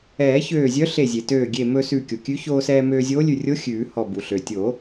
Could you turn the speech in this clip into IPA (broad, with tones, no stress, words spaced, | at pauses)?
ɛː˨˩˦ çøː˧˩zʲœ˧˥ ɬe˧˩zʲe˩ tøː˧˩ ɡʲe˧˩mɵ˧sʉ˧˩ kʲo˩kʲʉ˧˥ çoː˧sɛː˧ møː˧zʲoː˧˥lʲʉ˧˩rʲo˧˥ xʲʉː˨˩˦hɔ˧˩ bu˩ɬø˩tʲo˨˩˦